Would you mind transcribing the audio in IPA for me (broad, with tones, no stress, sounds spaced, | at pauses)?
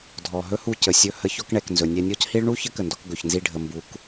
dʱ ɔ˨ ɦ ɵ˦ h u˧ c ə˨ sʲ ɵ˧ h ə˧ ç ɔ˧ k ɳ ɛ˨ k n z ɵ˨ nʲ ɛ˧ nʲ ɔ˦ c h i˦ ɭ ɳ u˦ ç ə˦ k ə˨ n d ɔ˧ k ɡ ɵ˨ ç n z i˧ ɖʱ ə˨ m b u˨˦ k